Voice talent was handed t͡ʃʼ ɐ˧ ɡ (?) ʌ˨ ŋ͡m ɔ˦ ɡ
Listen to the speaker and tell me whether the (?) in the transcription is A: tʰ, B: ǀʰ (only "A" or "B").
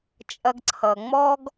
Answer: B